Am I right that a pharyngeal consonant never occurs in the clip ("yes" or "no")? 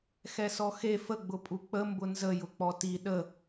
yes